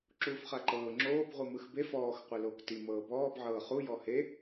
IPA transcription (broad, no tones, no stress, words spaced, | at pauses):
ǁuːfχaǃɤː ŋ͡ǁoːb ʁʷɯmɯxbef ɔːx qʷeloːkti mɤːbɔːb ʕɤːχu jɔhe